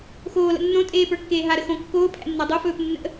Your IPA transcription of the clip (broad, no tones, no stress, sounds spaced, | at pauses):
x oː l ə̰ nː õ tʼ eː p ə˞ kː eː ɦ a ɾ ə x õ kː oː pʰ æ̰ nː a dˤ o f ɵː p nː ə̰